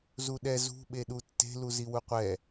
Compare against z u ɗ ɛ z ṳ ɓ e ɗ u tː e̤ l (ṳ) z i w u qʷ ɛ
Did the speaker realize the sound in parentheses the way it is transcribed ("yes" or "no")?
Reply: no